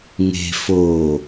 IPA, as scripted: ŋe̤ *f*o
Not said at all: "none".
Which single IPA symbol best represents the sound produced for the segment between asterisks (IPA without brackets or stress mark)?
f